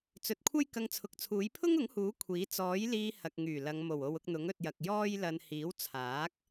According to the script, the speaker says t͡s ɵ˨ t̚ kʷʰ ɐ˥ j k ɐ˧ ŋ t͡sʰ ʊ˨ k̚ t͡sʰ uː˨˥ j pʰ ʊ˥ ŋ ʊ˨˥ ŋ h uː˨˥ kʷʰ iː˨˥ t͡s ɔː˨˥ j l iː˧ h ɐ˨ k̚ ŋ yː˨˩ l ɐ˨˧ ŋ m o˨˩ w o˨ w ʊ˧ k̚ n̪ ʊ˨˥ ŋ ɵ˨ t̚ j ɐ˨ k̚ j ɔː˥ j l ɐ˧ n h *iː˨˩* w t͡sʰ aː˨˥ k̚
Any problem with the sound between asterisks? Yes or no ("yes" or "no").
yes